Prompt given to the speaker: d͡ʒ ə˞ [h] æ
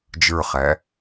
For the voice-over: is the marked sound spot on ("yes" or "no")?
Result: no